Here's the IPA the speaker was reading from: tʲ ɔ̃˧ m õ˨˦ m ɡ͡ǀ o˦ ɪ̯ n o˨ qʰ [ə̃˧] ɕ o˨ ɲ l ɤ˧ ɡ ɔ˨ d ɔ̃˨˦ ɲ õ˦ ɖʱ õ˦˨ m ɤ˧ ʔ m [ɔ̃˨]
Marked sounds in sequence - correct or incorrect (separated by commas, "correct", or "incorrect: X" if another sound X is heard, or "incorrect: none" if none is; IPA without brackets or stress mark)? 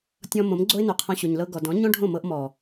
incorrect: ɔ̃˧, incorrect: ɔ˨